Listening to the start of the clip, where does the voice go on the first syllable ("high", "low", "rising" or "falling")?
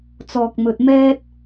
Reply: low